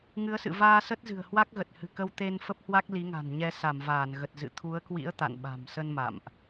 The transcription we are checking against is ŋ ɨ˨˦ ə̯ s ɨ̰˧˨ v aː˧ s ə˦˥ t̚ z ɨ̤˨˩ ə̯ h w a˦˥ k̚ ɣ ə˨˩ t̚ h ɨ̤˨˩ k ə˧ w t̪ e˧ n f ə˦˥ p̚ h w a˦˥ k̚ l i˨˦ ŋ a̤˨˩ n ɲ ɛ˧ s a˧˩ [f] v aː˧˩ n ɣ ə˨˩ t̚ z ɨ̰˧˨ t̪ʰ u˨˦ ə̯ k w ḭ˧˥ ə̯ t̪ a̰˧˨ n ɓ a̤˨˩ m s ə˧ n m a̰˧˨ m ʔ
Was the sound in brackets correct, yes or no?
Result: no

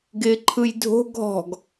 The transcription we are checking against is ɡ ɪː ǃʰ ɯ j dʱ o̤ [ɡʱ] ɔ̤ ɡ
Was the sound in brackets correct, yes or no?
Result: yes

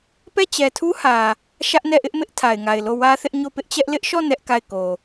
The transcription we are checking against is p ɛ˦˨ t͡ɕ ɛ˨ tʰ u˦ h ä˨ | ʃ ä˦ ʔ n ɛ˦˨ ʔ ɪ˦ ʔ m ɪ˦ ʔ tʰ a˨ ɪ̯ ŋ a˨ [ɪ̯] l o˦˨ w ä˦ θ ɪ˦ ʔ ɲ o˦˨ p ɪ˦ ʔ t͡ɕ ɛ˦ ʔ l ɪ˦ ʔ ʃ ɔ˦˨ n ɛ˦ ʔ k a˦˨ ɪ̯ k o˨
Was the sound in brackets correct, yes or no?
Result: yes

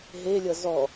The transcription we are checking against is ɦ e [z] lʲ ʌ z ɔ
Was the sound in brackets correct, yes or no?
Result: no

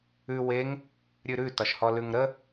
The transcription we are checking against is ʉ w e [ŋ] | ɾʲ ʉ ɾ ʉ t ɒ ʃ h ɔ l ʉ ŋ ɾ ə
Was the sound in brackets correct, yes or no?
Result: yes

